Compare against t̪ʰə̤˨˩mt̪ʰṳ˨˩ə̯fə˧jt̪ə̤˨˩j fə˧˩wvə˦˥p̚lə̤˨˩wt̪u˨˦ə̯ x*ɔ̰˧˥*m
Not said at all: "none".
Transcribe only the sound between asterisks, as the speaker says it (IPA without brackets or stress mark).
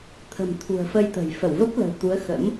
ə̰˧˥